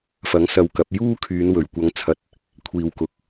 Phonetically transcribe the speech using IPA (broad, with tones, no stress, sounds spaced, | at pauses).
f ɐ˨˥ ŋ s ɐ˧ w k ɐ˨˥ p̚ j uː˥ kʰ yː˨˧ n w ɵ˨˩ ɥ kʷ ɐ˨˧ ŋ t͡sʰ ɐ˨ t̚ | kʷʰ iː˨ w k ʊ˨˥ k̚